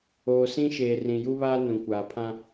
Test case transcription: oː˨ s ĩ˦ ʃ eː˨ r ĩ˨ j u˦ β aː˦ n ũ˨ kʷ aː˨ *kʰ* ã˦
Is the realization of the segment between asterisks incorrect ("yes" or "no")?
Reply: yes